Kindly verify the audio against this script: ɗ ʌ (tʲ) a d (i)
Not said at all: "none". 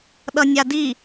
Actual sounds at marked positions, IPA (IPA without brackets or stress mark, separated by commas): nʲ, i